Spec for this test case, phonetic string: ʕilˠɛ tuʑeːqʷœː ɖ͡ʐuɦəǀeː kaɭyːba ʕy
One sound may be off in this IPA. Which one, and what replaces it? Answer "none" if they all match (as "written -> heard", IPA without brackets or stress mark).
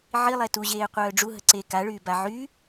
none